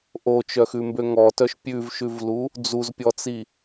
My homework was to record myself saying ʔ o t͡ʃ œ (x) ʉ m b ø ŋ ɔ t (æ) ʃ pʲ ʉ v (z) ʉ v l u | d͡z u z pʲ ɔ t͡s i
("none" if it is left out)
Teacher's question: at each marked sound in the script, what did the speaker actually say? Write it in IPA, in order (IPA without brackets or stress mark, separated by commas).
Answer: x, œ, ʃ